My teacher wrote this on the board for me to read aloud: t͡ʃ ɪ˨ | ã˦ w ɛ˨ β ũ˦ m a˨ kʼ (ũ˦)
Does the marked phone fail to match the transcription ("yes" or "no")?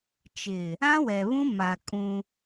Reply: no